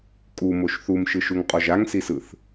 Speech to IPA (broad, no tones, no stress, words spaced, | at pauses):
kʼumoʃ θumʃɯʃuŋqʼɔʒ aŋsisɯθ